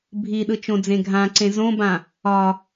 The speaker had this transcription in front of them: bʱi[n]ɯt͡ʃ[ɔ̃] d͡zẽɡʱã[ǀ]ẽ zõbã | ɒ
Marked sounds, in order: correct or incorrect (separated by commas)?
incorrect, incorrect, correct